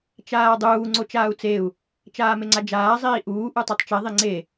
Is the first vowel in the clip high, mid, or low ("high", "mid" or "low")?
low